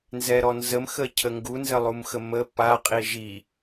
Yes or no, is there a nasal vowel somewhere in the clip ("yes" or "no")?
no